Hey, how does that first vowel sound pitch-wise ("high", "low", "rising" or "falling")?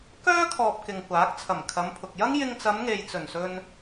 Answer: high